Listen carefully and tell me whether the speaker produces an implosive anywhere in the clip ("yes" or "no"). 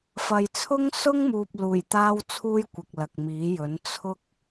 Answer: no